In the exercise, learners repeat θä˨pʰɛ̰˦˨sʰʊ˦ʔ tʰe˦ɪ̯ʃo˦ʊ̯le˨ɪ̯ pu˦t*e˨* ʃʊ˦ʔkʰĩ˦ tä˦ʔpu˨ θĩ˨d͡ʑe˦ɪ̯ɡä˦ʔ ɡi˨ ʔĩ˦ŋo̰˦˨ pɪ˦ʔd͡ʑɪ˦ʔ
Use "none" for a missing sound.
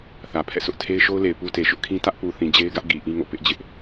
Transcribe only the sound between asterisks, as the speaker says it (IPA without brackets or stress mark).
e˨